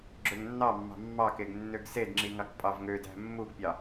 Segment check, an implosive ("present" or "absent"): absent